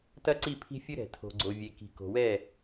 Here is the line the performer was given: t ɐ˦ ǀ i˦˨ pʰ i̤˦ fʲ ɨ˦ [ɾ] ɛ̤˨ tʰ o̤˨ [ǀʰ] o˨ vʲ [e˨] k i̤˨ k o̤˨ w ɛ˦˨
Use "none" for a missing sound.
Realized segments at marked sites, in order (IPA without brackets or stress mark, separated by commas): ɾ, ɡ͡ǀ, e˨